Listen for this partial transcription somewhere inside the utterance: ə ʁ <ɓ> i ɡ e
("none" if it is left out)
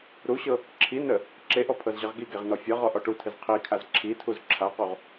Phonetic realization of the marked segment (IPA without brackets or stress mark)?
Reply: ɡ